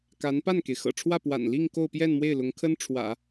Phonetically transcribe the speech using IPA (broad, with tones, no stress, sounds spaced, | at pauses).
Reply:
k a˧˥ n p a˥˩ n k e˩ ɪ̯ x ɤ̰˨˩ ʈ͡ʂʰ w ä˥˩ p w a̰˨˩ n l i˥˧ ŋ k o˥˧ ʊ̯ p j ɛ˥˧ n m w e˥˩ ɪ̯ l ʊ˧˥ ŋ kʰ ə˥ n ʈ͡ʂʰ w ä̰˨˩˦